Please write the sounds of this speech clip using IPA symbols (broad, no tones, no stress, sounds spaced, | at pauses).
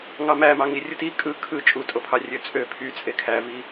ŋ ɑ m æ m ɑ ŋ i rʲ ɯ t i kʼ ɯ kʰ ɯ t͡ʃʼ u tʼ o pʰ ɑ rʲ ø t͡sʼ ø pʰ y t͡sʼ e kʰ æ v i